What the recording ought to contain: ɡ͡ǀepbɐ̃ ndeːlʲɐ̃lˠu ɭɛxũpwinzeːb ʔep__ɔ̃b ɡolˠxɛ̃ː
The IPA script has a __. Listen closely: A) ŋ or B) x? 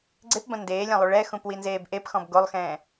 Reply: B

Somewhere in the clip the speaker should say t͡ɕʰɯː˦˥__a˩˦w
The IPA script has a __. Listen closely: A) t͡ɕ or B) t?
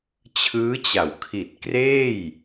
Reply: A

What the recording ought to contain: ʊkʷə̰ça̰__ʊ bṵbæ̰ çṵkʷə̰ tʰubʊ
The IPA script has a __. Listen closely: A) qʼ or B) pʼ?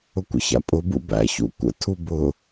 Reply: B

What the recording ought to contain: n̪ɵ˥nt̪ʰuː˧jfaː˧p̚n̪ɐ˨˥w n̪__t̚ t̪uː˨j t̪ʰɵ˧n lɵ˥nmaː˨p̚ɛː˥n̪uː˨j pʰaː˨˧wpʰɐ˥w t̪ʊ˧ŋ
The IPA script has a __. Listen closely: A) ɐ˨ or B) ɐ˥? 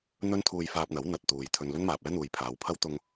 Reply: A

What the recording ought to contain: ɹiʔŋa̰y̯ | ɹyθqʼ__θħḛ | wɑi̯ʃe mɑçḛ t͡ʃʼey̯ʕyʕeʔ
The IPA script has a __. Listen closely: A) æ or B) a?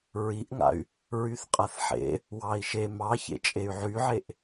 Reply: B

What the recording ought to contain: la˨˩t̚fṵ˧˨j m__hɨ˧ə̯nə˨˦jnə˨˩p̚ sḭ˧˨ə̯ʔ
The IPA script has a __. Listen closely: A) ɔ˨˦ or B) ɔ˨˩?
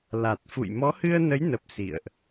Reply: A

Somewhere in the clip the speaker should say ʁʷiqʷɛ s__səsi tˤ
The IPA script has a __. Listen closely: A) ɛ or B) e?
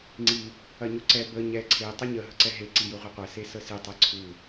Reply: B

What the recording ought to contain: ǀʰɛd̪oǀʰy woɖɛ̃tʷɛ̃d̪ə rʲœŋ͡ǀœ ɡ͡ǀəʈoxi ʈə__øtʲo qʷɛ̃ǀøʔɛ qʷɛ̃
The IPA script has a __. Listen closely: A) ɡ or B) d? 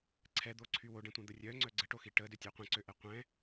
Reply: B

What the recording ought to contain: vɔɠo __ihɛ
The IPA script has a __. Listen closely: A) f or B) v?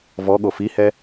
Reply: A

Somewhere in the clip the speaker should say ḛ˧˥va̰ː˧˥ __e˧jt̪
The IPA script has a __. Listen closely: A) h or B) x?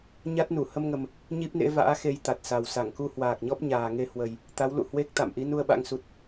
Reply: B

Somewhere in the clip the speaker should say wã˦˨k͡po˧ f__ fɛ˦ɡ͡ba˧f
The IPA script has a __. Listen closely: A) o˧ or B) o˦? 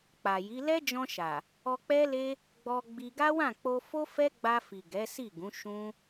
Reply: B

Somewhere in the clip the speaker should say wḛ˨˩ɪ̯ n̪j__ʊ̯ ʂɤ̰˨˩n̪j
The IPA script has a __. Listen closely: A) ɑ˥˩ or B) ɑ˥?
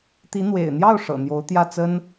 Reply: A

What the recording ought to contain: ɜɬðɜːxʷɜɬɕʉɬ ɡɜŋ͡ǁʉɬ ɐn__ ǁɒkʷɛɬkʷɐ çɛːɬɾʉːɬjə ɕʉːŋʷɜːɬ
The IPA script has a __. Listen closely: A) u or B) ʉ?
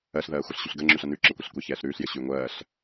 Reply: B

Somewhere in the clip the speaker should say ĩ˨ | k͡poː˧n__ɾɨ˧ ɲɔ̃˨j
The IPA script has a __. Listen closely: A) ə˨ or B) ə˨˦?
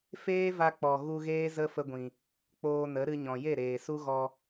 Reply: B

